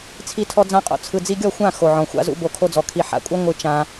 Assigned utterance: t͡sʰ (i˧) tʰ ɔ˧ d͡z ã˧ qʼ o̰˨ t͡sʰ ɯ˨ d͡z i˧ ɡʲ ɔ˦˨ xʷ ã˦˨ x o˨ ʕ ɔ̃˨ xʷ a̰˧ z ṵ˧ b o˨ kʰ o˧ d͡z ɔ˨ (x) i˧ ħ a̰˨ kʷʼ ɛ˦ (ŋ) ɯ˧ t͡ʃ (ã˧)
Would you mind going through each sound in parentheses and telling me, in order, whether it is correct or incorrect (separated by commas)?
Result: correct, incorrect, incorrect, correct